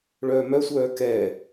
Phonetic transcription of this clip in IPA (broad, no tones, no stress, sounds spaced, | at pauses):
ɭ œː m œ sʷ œː k ɛ